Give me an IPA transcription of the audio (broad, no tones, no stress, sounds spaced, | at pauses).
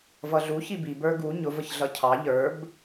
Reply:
v ʌ ɮ u ç i b i b ə˞ ɡ u ɲ ʊ v ə ç ɮ ʌ cʰ ɑ ʎ ə˞ b